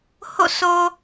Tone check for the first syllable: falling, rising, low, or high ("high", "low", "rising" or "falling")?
falling